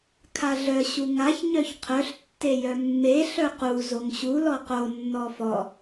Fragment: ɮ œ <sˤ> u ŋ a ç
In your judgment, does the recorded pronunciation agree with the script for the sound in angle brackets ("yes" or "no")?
no